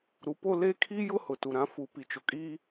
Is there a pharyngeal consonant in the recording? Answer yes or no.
no